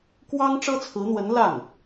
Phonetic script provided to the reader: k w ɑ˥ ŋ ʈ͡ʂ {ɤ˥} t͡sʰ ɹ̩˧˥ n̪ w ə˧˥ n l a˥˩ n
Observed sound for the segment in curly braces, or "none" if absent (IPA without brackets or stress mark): ɤ˥